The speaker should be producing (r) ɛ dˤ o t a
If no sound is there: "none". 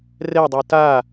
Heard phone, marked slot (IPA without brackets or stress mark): r